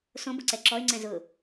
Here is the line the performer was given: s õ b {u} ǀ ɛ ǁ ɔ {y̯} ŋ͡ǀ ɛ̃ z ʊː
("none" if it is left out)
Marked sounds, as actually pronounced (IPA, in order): ʊ, y̯

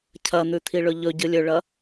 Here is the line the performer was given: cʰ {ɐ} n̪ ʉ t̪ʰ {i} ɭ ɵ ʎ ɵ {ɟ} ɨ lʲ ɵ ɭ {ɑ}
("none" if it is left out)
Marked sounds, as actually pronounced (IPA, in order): ɐ, i, ɟ, ɐ

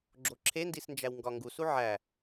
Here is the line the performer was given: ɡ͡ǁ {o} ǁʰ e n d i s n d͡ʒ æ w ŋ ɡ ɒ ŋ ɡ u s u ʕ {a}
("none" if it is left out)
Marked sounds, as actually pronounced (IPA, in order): o, æ

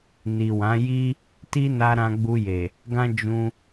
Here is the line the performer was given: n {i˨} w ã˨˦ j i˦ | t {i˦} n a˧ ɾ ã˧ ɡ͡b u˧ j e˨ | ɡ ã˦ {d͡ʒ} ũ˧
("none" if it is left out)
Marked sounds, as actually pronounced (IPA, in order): i˨, i˦, d͡ʒ

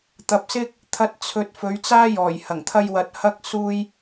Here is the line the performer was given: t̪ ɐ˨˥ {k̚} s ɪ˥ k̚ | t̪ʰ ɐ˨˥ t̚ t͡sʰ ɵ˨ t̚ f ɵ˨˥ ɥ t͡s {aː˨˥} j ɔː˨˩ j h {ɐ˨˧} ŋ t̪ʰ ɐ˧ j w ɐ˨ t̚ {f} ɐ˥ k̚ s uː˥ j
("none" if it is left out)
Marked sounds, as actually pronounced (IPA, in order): p̚, aː˥, ɐ˨˩, h

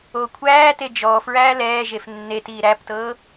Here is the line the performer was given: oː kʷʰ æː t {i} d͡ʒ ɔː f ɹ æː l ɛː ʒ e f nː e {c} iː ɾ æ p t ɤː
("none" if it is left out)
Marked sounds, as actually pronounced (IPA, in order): e, t

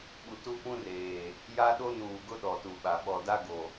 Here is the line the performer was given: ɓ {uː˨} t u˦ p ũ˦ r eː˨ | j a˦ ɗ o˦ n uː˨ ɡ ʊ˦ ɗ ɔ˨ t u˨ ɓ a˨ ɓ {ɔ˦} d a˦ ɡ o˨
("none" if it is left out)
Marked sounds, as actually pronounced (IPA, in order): u˨, ɔ˨

